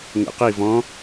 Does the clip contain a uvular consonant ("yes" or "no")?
yes